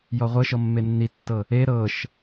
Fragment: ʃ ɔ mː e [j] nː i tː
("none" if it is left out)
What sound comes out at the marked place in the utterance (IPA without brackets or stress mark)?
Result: none